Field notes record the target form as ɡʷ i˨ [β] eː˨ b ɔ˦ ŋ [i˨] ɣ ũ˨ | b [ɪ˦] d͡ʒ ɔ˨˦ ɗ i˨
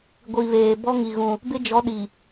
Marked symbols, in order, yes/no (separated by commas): yes, yes, yes